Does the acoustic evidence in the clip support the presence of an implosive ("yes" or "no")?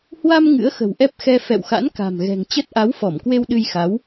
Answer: yes